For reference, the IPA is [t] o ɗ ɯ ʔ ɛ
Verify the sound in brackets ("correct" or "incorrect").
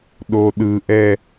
incorrect